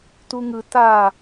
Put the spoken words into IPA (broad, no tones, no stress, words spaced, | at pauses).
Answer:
tuŋɯ ta